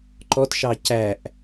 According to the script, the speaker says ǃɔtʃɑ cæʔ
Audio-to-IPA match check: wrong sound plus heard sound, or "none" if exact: none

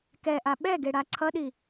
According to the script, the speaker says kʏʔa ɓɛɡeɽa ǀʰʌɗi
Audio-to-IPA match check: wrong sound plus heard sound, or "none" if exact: ʏ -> ɛ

